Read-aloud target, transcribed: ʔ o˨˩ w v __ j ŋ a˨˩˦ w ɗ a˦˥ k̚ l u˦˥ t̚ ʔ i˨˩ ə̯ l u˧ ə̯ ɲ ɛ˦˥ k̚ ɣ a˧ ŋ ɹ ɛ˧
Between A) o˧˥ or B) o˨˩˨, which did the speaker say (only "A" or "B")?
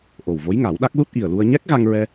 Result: A